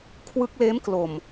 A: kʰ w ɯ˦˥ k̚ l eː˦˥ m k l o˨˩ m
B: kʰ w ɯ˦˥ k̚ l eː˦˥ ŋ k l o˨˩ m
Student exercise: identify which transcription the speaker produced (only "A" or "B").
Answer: A